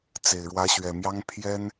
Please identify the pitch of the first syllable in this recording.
low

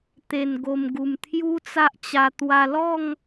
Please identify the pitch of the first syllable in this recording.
low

